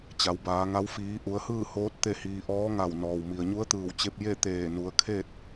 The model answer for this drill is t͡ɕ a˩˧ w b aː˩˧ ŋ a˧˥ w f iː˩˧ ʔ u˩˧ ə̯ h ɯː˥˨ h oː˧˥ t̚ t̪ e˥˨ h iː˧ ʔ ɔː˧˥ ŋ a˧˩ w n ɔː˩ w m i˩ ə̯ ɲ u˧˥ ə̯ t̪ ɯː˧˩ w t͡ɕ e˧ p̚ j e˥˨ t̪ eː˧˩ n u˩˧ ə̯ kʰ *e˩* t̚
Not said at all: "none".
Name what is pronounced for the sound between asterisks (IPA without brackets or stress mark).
e˥˨